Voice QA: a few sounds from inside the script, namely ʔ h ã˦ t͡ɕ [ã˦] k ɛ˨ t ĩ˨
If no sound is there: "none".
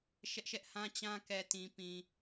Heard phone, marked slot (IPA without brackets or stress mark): ã˦